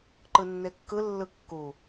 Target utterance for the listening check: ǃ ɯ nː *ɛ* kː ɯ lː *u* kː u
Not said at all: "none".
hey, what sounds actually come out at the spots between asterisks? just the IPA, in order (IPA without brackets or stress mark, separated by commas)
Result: e, ɯ